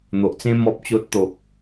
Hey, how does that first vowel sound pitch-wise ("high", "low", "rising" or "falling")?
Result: low